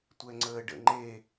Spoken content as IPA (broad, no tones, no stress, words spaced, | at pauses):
tʷɛŋ͡ǀəːɖə̰ ŋ͡ǃe